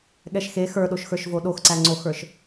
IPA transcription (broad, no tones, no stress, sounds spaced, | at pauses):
ɠ ɛ ʃ x e x ə˞ ɗ o ʃ x ə˞ ʃ v o ɗ o x ǀ æ ŋ͡ǀ o x ə˞ ʃ